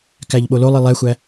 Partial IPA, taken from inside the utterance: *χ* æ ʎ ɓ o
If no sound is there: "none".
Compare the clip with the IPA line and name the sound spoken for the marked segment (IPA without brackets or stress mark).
k